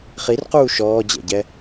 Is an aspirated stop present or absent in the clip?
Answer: absent